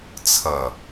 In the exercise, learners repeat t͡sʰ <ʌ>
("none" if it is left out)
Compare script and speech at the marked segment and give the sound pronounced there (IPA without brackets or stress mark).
ʌ